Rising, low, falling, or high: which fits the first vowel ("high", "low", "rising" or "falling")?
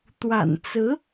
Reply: low